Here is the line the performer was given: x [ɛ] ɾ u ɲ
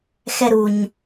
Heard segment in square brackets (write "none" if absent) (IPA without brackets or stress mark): ɛ